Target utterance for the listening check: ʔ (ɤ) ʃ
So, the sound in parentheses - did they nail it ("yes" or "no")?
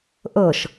yes